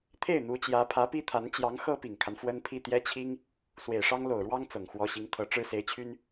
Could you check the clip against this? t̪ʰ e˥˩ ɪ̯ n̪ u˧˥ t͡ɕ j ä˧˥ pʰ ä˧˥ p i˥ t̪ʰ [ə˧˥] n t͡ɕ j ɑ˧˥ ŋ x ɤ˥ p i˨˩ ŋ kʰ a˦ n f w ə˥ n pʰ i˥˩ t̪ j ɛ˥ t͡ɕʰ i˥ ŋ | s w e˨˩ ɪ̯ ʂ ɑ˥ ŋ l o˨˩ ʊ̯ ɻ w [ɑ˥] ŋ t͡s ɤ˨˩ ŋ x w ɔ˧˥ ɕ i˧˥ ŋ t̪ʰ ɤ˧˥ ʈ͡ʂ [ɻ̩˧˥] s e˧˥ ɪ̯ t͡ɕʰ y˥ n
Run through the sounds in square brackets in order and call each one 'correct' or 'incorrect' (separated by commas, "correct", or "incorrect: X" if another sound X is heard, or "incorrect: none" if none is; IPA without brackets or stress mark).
incorrect: a˧˥, correct, incorrect: ɻ̩˥